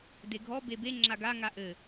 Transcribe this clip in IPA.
d e ɡʱ ɔ b e b e ŋ͡ǁ a ɡ a ŋ a ʔ ɘ

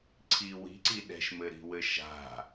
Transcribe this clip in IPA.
ǀʰ i w i̤ ǀ i ɗ ɛ̤ ʃ m ɘ ɾ i̤ w ɘ ʃ a̤

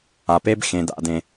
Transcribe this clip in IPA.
a˩ p e˥ b x ẽ˩ d a̰˩ d ẽ˩

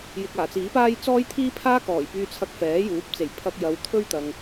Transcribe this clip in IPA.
j ɪ˨ k̚ aː˨˩ t͡s iː˨˥ p aː˥ j t͡s ɔː˥ j t̪ʰ iː˥ pʰ aː˥ k ɔː˨˩ j p yː˧ t͡sʰ ɐ˧ k̚ f ɛː˨˥ j uː˨˥ p̚ t͡s e˨˩ j pʰ ɐ˧ k̚ j ɐ˨˧ w t̪ʰ ɵ˥ ɥ t̪ ɐ˨ ŋ

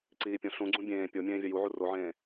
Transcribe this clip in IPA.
ǀ iː pʲ õ ɬ ũ ɡ͡ǀ ũ bʲ ẽː pʲ o mʲ ẽː vʲ ɐ j u ʕ u r o ʕ ẽː

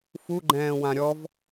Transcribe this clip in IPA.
f u ɡ͡ǃ ɛ̃ː w ã ɾʲ ɔ v

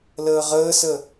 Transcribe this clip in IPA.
l əː ʁ əː s ə

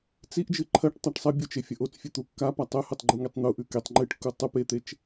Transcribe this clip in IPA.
t͡s i ʔ d͡ʒ ɨ ǃʰ ɐ ʈ tˤ a ʈ sˤ ɐ bʲ u t͡ʃ e fʲ ɐ ʔ o t͡s fʲ ɨ t̪ u kː a p a tˤ ɵ h ɨ tˤ ɡ͡ǃ u ŋ e tˤ n̪ u ʔ ʉ k e tˤ ŋ͡ǃ ɨ ʈ kː u tˤ u p e t̪ e t͡ʃ

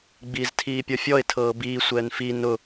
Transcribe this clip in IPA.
ɡ͡b iː z tʰ iː pʲ ɔ fʲ ɔ ɪ̯ tʰ ɤː b iː sʷ ɛː n f i n ʊ

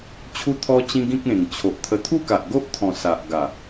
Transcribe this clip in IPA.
t͡ɕʰ u˧ t̪ʰ ɔ˧ t͡ɕ ĩ˧ ɡ ĩ˦ k̚ ẽ˨˩ ŋ t͡ɕʰ o˨ ʔ t̪ʰ ə˧ t̪ʰ u˥˧ k a˨ ʔ ɡ o˦ ʔ t̪ʰ ɔ̃˨˩ s a˨ ʔ ɡ a˨˩

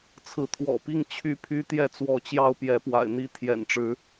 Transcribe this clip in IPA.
t͡sʰ ɹ̩˨˦ t̪ʰ w ɔ̰˨˩ p i˥˨ ŋ t͡ɕʰ y˥˨ pʰ y˦ t̪ j ɛ˥˨ t͡s w ɔ˨˦ t͡ɕ j ɑ˦ ʊ̯ p j ɛ˨˦ p w a̰˨˩ ɪ̯ n̪ i˦ t̪ʰ j ɛ̰˨˩ n ʈ͡ʂ ɻ̩˦

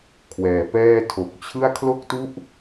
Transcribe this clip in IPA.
kʰ w ɛː˨˩ p ɛː˥˩ tʰ o˨˩ k̚ t͡ɕʰ ɯ˥˩ a̯ kʰ l o˦˥ k̚ t u˦˥ ʔ

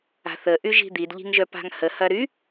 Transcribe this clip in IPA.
a̤ θ ə ʔ y ʒ i̤ d̪ i d ʎ i̤ ŋ ʒ œ p a̤ ŋ h ə h ɐ ɾ y

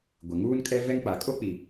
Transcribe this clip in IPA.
ɡʷ e˨ ŋ uː˦ n kʼ ɛ˦ v ɛ˦ ŋ k͡p a˨ kʼ o˦ k͡p i˨

